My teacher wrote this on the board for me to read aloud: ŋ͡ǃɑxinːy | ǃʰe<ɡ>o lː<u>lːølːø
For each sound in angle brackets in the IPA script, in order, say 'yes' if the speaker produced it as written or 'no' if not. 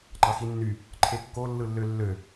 no, no

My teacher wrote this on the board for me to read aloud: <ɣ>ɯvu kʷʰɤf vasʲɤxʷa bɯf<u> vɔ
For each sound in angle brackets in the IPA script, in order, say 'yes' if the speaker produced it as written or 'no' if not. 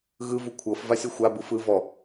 yes, no

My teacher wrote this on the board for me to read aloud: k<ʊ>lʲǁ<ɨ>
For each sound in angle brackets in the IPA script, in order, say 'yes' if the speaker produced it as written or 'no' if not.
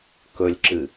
no, yes

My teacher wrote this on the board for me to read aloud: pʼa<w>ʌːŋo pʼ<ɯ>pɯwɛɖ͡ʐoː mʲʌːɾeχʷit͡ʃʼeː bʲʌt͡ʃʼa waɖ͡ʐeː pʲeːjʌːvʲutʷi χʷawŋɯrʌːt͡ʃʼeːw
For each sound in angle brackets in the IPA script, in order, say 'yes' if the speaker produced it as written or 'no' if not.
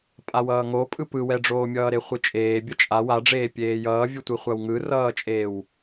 yes, yes

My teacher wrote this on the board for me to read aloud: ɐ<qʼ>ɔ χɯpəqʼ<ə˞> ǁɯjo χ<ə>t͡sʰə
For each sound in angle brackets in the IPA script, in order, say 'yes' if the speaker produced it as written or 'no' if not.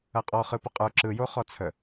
yes, yes, no

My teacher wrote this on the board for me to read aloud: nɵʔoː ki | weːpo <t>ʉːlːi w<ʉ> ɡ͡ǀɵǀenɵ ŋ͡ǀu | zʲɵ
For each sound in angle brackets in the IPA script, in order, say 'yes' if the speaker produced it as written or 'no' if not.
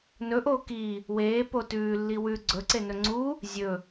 yes, yes

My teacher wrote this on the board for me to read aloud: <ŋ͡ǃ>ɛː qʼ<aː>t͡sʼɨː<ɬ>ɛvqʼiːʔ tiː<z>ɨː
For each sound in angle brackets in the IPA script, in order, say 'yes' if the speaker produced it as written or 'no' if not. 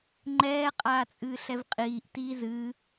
yes, yes, yes, yes

